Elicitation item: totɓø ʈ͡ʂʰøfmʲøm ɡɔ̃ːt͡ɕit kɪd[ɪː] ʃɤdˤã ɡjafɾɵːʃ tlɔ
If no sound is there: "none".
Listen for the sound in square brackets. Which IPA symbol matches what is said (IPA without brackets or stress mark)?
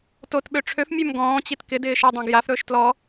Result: ɪː